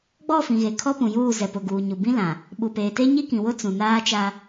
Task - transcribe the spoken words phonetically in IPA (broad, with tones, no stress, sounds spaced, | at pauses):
ɡ͡b ɔ˦˨ f ĩ˨ ɣ e˨ kʰ ɔ˦ p ũ˨ j uː˦˨ z ɛ˨ p ʊ˨ ɡ uː˨ ɲ u˨ b ĩ˦ l ã˨ | ɓ u˨ p eː˨ t e˦ ɲ i˦ k ĩ˨ w ʊ˦ t͡s ũ˨ n aː˦ t͡ʃ a˦